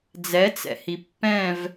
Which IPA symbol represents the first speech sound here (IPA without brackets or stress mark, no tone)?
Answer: d͡z